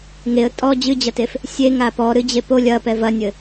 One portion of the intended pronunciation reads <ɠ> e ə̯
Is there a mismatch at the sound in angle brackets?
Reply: yes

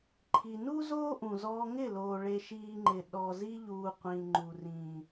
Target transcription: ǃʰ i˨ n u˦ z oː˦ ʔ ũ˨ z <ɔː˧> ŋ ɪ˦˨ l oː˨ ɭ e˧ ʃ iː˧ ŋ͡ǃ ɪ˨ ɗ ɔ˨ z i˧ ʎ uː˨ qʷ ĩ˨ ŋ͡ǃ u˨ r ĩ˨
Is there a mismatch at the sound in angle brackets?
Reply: no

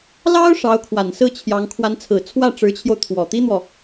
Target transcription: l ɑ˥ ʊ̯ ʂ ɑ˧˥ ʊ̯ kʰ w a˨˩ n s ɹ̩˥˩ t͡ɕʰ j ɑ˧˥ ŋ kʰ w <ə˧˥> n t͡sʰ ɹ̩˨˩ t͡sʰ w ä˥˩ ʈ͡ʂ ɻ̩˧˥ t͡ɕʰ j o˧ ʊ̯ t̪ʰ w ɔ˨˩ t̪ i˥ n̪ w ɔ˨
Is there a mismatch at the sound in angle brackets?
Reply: yes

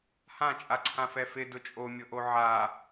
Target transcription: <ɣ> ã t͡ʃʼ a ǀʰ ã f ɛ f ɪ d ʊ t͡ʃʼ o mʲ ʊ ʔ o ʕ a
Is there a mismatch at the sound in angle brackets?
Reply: yes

